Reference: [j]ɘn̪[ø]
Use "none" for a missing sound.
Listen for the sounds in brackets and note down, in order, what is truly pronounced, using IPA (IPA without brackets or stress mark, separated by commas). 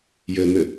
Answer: j, ɘ